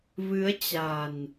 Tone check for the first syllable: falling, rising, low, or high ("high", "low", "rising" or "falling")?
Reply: rising